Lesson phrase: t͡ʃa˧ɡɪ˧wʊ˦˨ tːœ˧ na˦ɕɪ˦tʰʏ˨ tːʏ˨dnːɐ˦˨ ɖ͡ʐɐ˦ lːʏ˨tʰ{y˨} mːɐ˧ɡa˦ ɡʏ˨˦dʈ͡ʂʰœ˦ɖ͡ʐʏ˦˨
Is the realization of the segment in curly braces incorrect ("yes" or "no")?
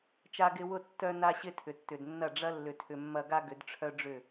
yes